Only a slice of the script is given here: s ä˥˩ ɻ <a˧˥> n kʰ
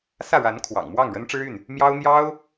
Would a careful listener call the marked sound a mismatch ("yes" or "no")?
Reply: no